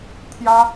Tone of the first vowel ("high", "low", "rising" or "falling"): high